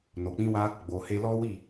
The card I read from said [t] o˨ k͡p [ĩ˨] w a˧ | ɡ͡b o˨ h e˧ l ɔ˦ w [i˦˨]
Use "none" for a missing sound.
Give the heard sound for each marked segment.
n, ĩ˧, i˦˨

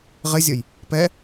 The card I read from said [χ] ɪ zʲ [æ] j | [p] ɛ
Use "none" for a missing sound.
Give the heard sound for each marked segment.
ʁ, ə, p

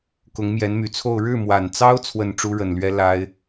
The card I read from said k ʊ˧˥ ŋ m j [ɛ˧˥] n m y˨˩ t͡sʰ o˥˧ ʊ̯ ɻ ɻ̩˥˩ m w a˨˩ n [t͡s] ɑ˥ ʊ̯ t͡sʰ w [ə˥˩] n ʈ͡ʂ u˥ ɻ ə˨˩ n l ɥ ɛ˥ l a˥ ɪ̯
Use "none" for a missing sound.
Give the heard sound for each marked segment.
ɛ˧˥, t͡s, ə˥˩

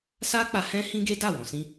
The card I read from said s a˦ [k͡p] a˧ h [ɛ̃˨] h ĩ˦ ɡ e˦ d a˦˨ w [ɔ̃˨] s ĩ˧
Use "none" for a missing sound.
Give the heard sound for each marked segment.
k͡p, ɛ̃˦, ɔ̃˨

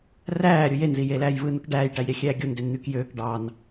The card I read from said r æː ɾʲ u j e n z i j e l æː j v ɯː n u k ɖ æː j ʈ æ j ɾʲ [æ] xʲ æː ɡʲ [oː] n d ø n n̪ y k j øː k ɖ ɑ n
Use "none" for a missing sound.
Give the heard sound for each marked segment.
æ, o

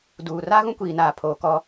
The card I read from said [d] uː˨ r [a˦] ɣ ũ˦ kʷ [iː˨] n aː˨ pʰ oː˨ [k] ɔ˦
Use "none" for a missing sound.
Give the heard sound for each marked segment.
d, a˦, iː˨, k

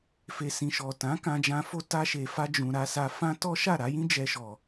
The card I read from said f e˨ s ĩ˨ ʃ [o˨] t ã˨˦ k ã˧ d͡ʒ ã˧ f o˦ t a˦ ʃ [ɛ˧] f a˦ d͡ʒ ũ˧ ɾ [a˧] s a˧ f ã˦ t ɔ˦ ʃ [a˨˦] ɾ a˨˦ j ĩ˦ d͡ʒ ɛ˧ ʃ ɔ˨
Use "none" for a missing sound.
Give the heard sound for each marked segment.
ɔ˨, e˧, a˧, a˦˨

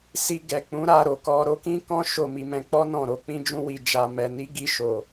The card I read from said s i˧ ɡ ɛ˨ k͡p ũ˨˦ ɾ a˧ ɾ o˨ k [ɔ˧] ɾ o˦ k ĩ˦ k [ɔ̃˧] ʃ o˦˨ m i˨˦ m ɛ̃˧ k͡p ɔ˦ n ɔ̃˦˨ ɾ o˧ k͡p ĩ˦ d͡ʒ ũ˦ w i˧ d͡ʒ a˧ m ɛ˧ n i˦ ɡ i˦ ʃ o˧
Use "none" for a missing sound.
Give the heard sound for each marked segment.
ɔ˧, ɔ̃˦

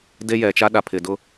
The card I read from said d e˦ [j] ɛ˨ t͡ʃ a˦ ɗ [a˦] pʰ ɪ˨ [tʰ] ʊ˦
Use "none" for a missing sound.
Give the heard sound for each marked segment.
j, a˨, d

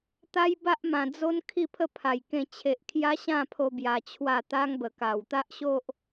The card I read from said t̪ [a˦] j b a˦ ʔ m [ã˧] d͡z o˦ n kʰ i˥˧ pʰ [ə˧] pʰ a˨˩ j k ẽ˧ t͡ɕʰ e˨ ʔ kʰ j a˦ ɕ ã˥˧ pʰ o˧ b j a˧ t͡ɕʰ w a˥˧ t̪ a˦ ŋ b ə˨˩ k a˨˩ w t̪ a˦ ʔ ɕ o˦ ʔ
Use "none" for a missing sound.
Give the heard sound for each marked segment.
a˦, ã˨˩, ə˥˧

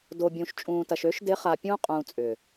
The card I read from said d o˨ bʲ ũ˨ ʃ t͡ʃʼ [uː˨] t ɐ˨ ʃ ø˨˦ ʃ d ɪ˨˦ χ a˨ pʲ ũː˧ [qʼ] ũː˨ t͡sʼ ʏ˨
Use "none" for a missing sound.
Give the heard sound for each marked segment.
ũː˨, qʼ

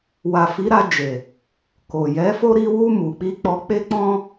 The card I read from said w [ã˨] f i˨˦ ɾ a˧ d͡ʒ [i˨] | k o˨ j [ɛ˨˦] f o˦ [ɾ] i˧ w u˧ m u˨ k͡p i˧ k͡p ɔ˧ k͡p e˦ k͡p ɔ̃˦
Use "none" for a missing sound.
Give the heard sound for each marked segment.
a˨, e˨, ɛ˨˦, ɾ

